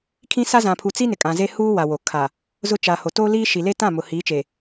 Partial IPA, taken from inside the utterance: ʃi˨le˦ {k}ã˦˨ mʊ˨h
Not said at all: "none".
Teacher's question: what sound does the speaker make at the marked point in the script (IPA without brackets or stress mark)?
t